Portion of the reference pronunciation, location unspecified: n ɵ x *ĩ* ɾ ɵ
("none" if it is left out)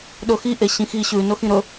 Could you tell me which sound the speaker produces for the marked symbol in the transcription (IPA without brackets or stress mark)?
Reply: ĩ